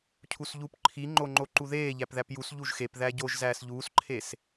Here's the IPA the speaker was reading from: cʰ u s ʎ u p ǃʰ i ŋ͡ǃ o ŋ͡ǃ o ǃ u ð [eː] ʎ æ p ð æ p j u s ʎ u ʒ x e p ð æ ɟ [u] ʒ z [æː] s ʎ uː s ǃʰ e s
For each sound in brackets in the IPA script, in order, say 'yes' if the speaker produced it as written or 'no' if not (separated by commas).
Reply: yes, no, yes